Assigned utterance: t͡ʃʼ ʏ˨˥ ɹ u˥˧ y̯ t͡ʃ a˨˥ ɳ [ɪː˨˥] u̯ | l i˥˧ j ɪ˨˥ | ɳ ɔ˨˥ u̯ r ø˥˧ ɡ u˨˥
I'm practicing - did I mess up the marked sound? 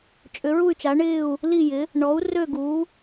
yes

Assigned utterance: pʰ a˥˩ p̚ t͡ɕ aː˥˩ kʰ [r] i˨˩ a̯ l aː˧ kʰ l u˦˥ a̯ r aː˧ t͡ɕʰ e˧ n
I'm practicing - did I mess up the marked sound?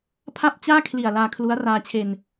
yes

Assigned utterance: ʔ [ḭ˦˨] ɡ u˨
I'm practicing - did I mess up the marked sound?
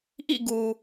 no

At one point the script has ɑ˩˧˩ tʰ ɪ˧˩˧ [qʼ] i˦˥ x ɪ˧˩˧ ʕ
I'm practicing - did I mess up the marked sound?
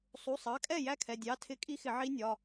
yes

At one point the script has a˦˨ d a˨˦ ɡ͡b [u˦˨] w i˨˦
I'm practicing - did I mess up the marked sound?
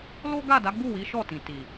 no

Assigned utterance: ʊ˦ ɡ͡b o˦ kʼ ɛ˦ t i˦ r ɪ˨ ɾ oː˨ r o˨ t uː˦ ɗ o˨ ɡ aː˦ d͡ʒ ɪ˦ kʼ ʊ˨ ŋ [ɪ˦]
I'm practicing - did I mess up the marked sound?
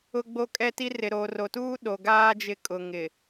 yes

